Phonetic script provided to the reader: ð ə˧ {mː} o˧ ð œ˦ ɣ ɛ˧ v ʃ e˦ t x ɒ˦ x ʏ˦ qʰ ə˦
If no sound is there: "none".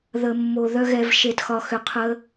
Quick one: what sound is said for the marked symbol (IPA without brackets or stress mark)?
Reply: mː